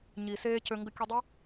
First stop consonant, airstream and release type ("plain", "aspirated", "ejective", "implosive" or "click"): plain